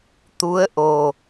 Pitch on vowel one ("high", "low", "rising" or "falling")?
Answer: rising